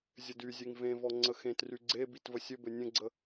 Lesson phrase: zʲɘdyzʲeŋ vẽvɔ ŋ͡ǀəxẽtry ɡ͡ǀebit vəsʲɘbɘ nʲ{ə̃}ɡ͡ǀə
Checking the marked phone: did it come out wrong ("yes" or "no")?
no